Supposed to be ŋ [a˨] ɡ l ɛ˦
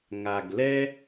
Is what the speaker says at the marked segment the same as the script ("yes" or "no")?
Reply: yes